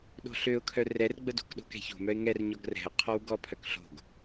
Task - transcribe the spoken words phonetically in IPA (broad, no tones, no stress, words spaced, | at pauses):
ɗo̤ɬøʊ̯kʰœ rɛrɡ͡bədo̤k ɗo̤kɛ̤ço̤mœɪ̯ ŋɛrɲɔɡ rɛ̤ʊ̯qʰɔw ɡɔ pʰœkɬo̤ɡ